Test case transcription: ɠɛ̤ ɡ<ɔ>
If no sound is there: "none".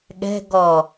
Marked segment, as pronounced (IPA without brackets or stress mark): ɔ